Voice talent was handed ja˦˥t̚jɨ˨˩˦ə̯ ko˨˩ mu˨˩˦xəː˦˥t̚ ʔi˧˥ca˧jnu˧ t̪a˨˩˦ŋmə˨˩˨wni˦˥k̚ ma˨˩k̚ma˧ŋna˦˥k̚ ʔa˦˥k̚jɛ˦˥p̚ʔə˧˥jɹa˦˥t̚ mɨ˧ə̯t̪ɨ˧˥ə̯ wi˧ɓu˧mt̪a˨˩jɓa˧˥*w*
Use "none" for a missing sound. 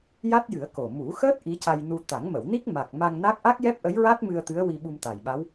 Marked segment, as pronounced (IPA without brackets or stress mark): w